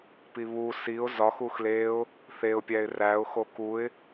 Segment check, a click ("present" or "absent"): absent